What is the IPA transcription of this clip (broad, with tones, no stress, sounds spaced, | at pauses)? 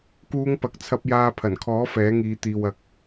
k uː˥ ŋ p ɐ˧ k̚ t͡sʰ ɐ˥ p̚ j aː˧ pʰ ɐ˨˩ n kʰ ɔː˨˥ f ɛː˨˥ ŋ iː˨˧ t̪ iː˨ w ɐ˨ k̚